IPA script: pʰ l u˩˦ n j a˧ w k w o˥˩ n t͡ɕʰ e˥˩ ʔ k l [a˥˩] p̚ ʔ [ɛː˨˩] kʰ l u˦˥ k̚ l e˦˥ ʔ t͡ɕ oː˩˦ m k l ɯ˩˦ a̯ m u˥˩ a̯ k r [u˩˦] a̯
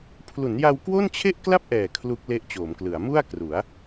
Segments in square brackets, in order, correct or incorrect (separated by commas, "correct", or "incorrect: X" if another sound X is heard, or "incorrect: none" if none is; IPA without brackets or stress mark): correct, correct, correct